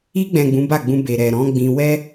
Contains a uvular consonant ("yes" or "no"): no